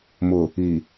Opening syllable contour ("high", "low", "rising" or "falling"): low